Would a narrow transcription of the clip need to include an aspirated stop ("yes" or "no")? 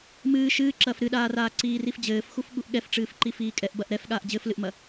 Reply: no